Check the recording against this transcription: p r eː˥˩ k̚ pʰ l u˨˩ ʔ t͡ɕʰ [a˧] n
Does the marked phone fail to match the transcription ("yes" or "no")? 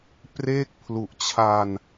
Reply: no